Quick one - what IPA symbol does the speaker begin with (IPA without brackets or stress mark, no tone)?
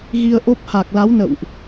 ɣ